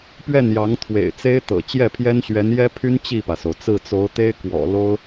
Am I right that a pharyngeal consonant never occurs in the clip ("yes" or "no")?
yes